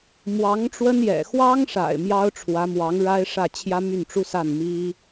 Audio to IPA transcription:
m w ɑ˧˥ ŋ ʈ͡ʂ w ə˥ n j ɛ̰˨˩ x w ɑ˥ ŋ ʂ a̰˨˩ ɪ̯ m j ɑ˥ ʊ̯ ʈ͡ʂʰ w ä˧˥ m w ɑ˧˥ ŋ ɻ a˥ ɪ̯ ʂ ä˥˩ t͡ɕʰ j ä˥ m y˥˩ n ʈ͡ʂ u˥ s a˥˩ n m i˥

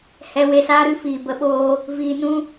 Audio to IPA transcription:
h ɛ˧ w e˧ s aː˦ ɾ ɨ˦ f iː˨ b ə˧ ɓ oː˧ | v iː˧ n ũ˦

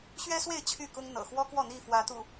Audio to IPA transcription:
ɕ ɥ ɛ˦ s w e˥˨ ɪ̯ t͡ɕʰ y˥˨ k ʊ˦ ŋ n̪ ɤ̰˨˩ x w ɔ˦ k w ɔ˥˨ n̪ i˥˨ f w ä˨˦ t̪ ṵ˨˩

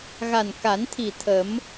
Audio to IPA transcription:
ɣ a˨˩ n k a˨˩˦ n t̪ʰ i˨˩ t̪ʰ ə˨˩˦ m

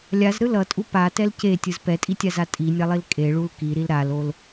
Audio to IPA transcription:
lʲ a z ɾ ɯ l ʌ tʼ u p a t ɛ l c e tʲ ɯ z p ɛ tʼ i tʲ a z a tʼ i nʲ a lˠ i l kʼ e ɭ u l k i ɾ i l ɾ a l o l

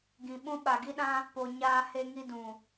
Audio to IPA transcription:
ɡ ĩ˨ ɓ ũ˦ ɓ a˨ ɡ i˦ ɗ ã˦ | p o˨ ɲ aː˧ h e˧ ŋ i˧ d ũ˨

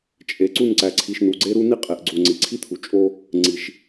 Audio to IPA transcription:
t͡ʃʼ e˨ ǀ u˦˨ n ǀ æ˨ ǀʰ i˨ ʃ n u˨ ɡ͡ǀ e˦ ɾ u˦ n i˦ qʼ e˨ ʔ ɡ͡ǀ u˨ ŋ͡ǀ i˨ ǀʰ i˦ t̪ʰ u˨ t͡ʃʼ o˦ | ŋ͡ǀ i˨ ʃ

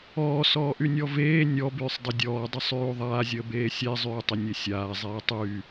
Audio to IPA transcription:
ɔː s ɔː ʔ y nʲ ɔ v eː nʲ ɔ b yː sˤ dˤ ə dʲ ɔː dˤ ə sˤ yː u̯ ðˤ aː zʲ əː b eː sʲ e zˤ yː tˤ ə nʲ e sʲ aː zˤ eː tˤ y

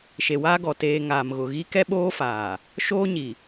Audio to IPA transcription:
ʃ e˨ w aː˦ ɡ ɔ˨ t eː˨ ŋ aː˨ m ɣ ʊ˨ ɣ i˦ k ɛ˦ ɓ oː˦ f aː˨ | ʃ oː˦ ɲ i˨

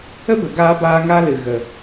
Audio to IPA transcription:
ə˦ b ə˨ ɡ aː˧ b aː˧ ŋ a˦ l ɨ˨ ɣ ə˨

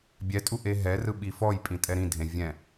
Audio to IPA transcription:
bʲ ɛ tʼ u ʔ e ɦ ɛ r ɯ ɓ i f ɔ j pʼ ĩ tʼ ɛ ɾ ĩ dʱ ẽ vʲ ɛ̃

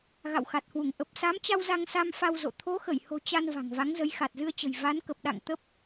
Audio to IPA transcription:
ɣ a̰˧˨ w x a˨˩ t̚ h w u˧˩ ŋ ʔ ə˨˩ p̚ s a˨˦ m t͡ɕ a˧ w z a˧ ŋ s a˧ m f a˧ w z o̰˧˨ t̪ʰ o˨˦ x ə˧˩ j h o̤˨˩ t͡ɕ a˧ n v a̤˨˩ ŋ v a˨˦ ŋ z ə˨˦ j x a˨˩ t̚ z ɨ˧ ə̯ t͡ɕ ə̤˨˩ j v a˨˦ n k ə˨˩ p̚ ɗ a̰˧˨ ŋ t̪ ə˦˥ p̚

